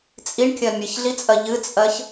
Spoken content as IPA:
t͡sʼiɳkʲɜ mʲɨçɮit͡sʼɜ ʎɨt͡sʼɜç

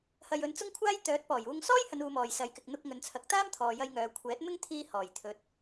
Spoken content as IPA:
hɐ˧jɵ˧n t͡sʊ˥ŋkʷʰaː˥j t̪œː˨˥t̚pɔː˨˩juː˧ŋ sɔː˥jhɐ˨˧n uː˨˧mɔː˨jsɐ˨˧j kɪ˨k̚n̪ʊ˧k̚ ŋɵ˨˧nt͡sʰɐ˨˥k̚t̪aː˥m t̪ʰɔː˨jɐ˧jŋœː˨ kʷʰɛː˨˥t̚mɪ˥ŋt̪ʰiː˧ hɔː˨˩jt̪ʰɵ˨t̚

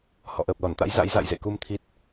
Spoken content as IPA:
hɔ̰˧˨ʔəː˨˩p̚lɔ˧˩nt̪a̰˧˥j za̰˧˥jza̰˧˨jzḛ˧˨ku˧m t̪ʰi˦˥t̚

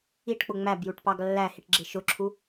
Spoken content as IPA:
iʈk͡pʊ ŋ͡mæbjuʈpɑɡ lːæhiʈɡ͡ǁɪ ʃʊǁʰu

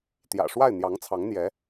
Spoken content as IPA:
t̪jä̰˨˩ʂwa˥˩ɪ̯ n̪jɑ˧˥ŋt͡sʰɑ˧˥ŋn̪jɛ˧˥

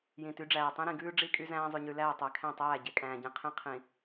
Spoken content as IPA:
jĩ˨ty˨˦ɖ͡ʐæː˨tˤĩ˦ ɾĩ˨ɡʉː˦ ɖ͡ʐi˦kʼy˦zæ̃ː˦ zˤʉ˨ɲʉ˨læː˦˨ tˤæ˨kʰæ̃˦˨tˤæː˦˨ ɟe˨kʼæ̃ː˨ɟĩ˨qʰĩ˦ qʰĩ˨

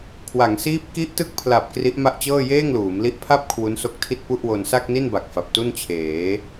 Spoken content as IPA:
kʰwa˩˦ŋsiː˦˥p̚ ki˦˥ʔtɯ˦˥k̚pʰla˨˩p̚ kri˦˥ʔma˥˩ʔt͡ɕɤː˥˩ jeː˥˩ŋluː˩˦mli˦˥ʔ pʰa˥˩p̚ kʰwu˦˥nso˦˥k̚tʰi˥˩t̚ pu˥˩ʔwo˧n sa˥˩k̚ni˥˩nba˨˩k̚ fa˨˩p̚tu˥˩nt͡ɕʰeː˩˦

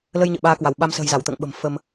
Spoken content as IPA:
lə˧j ɲə̰ː˧˨ɓaː˧kwa˧˩w ɓa˧m sə̤ː˨˩jza˧˩wt̪ə̰ː˧˨ŋ ɓə̤˨˩mfə˧m

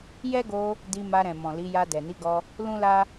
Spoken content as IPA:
jɛ˦ɡo˧ | di˧ma˧ɾɛ̃˨ mɔ̃˨li˨˦ ja˧dɛ˨ni˨˦ɡɔ˧ | lũ˦la˦

